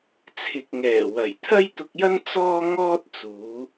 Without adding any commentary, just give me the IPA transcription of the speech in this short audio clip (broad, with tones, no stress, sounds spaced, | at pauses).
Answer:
t͡sʰ ɪ˨ k̚ ŋ ɛː˨˩ w ɐ˨˩ j t̪ʰ ɐ˥ j t̪ ʊ˧ k̚ j ɐ˥ n t͡s ɔː˥ ŋ ɔː˥ t̚ t͡s uː˨˧